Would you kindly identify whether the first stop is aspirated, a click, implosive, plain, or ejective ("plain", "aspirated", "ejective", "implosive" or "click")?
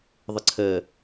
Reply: click